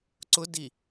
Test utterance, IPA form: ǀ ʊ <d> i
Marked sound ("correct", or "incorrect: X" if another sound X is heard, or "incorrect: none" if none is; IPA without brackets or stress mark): correct